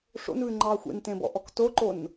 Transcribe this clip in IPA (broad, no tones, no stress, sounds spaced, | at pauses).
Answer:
ʂ o̰ n β ʉ ŋ͡ǃ ɑː xʷ ḛ n t ẽ b ɔ̰ ʔ ɔ k t o ǃ o n